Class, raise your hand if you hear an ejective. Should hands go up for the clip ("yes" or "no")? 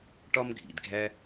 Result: no